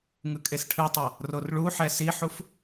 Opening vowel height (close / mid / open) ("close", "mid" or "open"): close